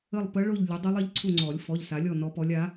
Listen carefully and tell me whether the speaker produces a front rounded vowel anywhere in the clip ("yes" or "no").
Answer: no